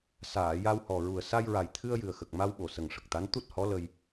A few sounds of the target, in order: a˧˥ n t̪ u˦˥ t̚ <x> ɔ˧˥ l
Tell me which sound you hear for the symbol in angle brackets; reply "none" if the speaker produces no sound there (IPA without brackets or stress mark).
h